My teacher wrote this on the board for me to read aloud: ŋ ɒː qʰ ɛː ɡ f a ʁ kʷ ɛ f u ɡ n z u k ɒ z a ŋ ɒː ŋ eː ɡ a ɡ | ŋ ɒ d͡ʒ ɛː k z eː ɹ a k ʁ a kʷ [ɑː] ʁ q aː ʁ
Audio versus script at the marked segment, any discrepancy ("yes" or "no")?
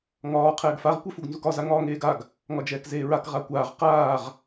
yes